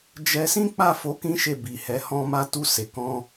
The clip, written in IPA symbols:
d͡ʒɛ˦ sĩ˦k͡pa˦˨ fo˧kĩ˦ ʃe˦˨bi˨hɛ˨˦hɔ̃˦ ma˧tu˧ se˨ kɔ̃˧

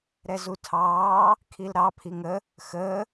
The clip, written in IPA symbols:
ɾɛzutʰɑː | kʰilɾɑ pʰiŋə | xəː

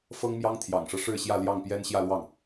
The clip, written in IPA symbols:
fɤ˥ŋmjɑ˥ŋt̪ʰjɑ̰˨˩ŋʂɤ˦ ʂɻ̩˥˧ɕjä˥˧ ljɑ˥˩ŋpjɛ˥n ɕjä˥˧lwɑ˥˩ŋ

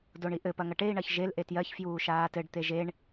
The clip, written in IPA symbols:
doɳiʔɘ pɐŋɐʈei̯ ɳɐçʒel ʔetjɜç fjuːʃaːtɘɖ t̪eʒeɳ

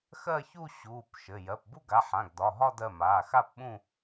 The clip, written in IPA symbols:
xɜ˥˧çu˥˧ ɕuː˩˧˩p ʃɘ˩˧˩ jɜ˩˧˩pbu˥˧ɡa˩˧˩ħã˩˧˩ɡ dɒ˩˧˩ɦɒ˥˧d ɜ˩˧˩maː˩˧˩xa˥˧pɓũ˥˧

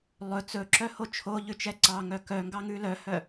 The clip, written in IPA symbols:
lˠɵ t͡sɵǁœho t͡ʃʰoʎʉt͡ʃɛ ǀɑŋœ kœŋɡɑŋʉ lœhœ

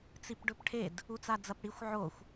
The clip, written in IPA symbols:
t͡sipɖɵpʈʰed | ut͡sad͡zɐpɽixʷ ʕoxʷ

